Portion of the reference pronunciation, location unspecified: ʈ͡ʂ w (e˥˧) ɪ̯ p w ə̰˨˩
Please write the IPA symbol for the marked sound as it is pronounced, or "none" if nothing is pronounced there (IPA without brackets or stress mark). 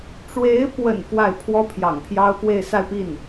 e˧˥